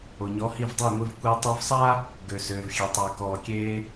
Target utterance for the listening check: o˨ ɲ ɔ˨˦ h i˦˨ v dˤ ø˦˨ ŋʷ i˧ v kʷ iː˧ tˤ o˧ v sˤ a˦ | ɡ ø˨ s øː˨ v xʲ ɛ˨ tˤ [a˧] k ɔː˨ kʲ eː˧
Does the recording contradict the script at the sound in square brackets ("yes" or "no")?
yes